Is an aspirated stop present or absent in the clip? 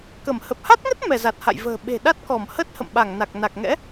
absent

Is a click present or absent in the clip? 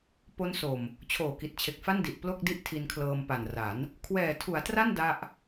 absent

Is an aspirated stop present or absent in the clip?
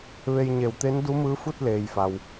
absent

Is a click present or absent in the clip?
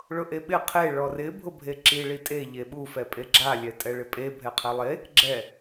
present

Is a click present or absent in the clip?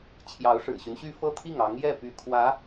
absent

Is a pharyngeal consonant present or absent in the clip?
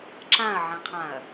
present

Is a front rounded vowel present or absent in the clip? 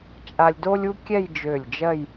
present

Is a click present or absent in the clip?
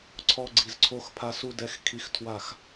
present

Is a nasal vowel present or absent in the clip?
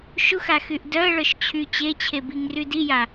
absent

